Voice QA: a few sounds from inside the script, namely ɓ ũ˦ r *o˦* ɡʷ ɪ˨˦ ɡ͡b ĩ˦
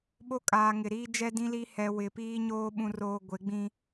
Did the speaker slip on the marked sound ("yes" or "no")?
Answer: yes